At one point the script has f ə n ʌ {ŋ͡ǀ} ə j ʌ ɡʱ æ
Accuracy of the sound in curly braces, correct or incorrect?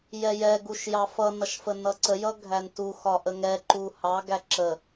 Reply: incorrect